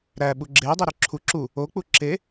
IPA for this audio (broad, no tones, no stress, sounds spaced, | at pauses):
ɾ æ ɓ u ɡ͡ǁ e dˤ i ɾ ø ǁʰ u ǁ u | o k͡p u ǁ e